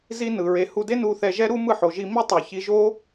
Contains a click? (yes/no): no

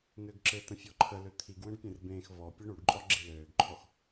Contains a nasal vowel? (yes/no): yes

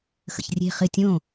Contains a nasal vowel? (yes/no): yes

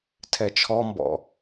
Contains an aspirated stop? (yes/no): yes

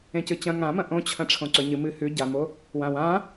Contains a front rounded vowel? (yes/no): no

